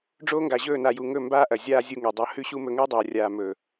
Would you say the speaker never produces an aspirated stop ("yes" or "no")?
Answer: yes